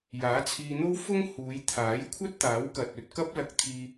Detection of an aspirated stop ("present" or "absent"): present